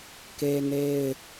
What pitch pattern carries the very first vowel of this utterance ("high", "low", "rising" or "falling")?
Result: high